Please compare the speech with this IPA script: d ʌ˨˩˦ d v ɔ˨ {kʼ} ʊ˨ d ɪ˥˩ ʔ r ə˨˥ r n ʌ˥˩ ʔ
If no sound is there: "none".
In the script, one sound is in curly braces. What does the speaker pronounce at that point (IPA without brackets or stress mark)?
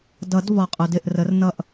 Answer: qʼ